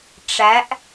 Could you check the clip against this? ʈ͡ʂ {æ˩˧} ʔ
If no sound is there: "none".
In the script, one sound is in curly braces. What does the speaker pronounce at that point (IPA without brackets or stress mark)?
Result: æ˩˧